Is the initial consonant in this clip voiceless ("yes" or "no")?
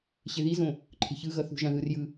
yes